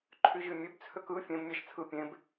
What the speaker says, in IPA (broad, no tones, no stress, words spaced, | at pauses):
ǃʰyʑymʲøbt͡sʰøk ɯ fʲẽbmʲæʃ t͡sʰɯ pʲẽb